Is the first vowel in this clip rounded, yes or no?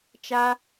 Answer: no